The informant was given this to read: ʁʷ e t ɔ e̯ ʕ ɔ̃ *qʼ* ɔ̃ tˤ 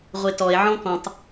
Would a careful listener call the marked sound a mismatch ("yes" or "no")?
yes